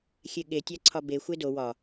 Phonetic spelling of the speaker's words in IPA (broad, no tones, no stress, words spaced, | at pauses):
xʲeɠe tʲæǀʰɒbe xʷedo wɒ